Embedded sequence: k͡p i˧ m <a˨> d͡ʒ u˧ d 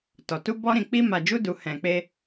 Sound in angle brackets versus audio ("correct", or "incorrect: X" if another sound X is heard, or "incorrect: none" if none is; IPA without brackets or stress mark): correct